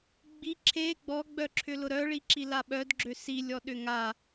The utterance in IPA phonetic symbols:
ɡ͡bi ǁʰe ɡ͡bɔɡ͡bœǁʰʏ lʊɾœɭiǁi laɓœdɡ͡ǁø silʲɔ ɗʏŋa

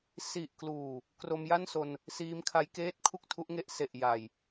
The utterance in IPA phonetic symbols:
si˨˩ʔkluː˨˩ | kro˧mja˥˩nso˧n | siː˦˥mkʰa˦˥jkeː˥˩t̚ kʰu˥˩k̚tʰu˦˥ʔŋe˦˥ʔ se˨˩ʔja˨˩j

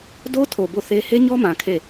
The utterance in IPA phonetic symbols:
do˦tʰo˨ bo˦˨θe˦ he˦ɲɔ˦mã˨ kʰe˦˨

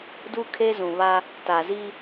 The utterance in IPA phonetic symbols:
du˦kʰe˦zũ˨βa˦ | ta˨zi˦

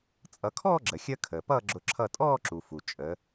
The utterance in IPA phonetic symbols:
t͡sʼʌ˩˧kʰɔː˥˧ɡ͡ǁə˩xʲəː˧ kʰəː˩pʌː˥˧ɡ͡ǁʊ˧˩ ǁʰʌ˧˩tʼɔː˥˧ ǁu˩fu˩ t͡ʃʼə˩˧

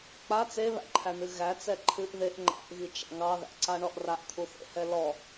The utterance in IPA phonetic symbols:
k͡pa t͡seβæ̰ǃʰæn̪ɨ ɣæt͡sɛ ǃʰɨʔ ðeʔ ŋ͡ǃa̰ʔɣit͡ʃa̰ ŋɑðæ̰ǀaɳɔʔ raʔt̪ʰuθḛhɛ lɔ

